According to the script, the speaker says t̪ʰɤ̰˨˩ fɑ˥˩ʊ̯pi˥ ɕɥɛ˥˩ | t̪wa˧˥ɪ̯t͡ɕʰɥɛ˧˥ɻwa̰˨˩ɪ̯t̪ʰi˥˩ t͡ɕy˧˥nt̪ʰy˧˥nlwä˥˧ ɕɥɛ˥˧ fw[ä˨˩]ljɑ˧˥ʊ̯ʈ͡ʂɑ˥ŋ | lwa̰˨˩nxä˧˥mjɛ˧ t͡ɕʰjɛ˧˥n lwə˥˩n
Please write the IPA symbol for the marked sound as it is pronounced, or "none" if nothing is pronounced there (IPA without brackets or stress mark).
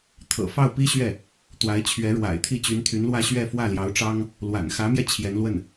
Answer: ä˥˩